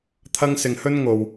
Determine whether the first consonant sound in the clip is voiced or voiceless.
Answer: voiceless